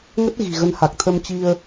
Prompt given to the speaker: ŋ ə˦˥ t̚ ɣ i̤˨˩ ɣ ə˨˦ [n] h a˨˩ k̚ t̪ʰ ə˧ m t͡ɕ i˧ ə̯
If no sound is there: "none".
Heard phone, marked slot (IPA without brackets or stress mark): n